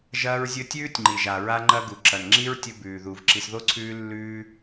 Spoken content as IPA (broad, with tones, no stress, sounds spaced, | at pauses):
ʒ ɐː˦ ɹ zʲ ɵ˦ tʲ ʉː˥ tʲ ŋ͡ǃ i˩ ʒ a˩ ɹ a˦ ŋ͡ǃ ɐ˦ ɡ u˩ ǁ ɐ˩ n ŋ͡ǁ i˦ ɹ tʲ ɵ˦ b ʉː˩ ð u˩ v ǁ i˨ s ð o˥ ǀʰ ʉː˦ lː ʉː˦